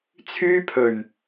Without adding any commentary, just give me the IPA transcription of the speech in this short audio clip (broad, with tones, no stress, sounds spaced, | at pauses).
t͡sʰ yː˥ pʰ ɵ˨˩ ɥ